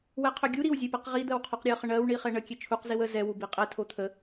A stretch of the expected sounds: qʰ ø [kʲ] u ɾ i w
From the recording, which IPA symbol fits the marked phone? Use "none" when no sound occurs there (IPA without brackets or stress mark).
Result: ɡʲ